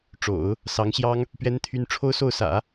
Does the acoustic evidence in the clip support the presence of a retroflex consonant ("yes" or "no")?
yes